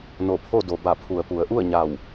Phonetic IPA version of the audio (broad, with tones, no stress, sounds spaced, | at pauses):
n o˧˩ pʰ o˥˨ d o˩ b a˧˩ pʰ u˩ ə̯ p u˩˧ ə̯ ʔ u˥˨ ə̯ ɲ a˧˩ w